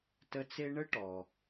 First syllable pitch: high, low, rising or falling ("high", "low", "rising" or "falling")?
high